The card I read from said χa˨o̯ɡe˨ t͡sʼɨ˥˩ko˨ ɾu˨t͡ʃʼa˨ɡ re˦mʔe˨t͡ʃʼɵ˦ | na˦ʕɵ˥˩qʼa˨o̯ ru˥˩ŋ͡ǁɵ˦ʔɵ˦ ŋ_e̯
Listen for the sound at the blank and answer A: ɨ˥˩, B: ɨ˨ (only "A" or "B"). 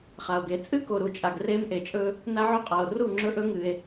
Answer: B